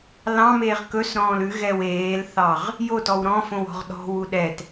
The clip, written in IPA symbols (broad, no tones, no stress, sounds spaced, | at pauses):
l ɑ̃ m eː ʁ k ɵ s ɾ ɔ̃ː l ʉ ɣ ɛ w eː l θ ɑ ʁ | j o t ɔ w ɾ ɔ̃ f õ w ɔ̤ ʁ ɗ ɔ̤ w u ɗ ɛ t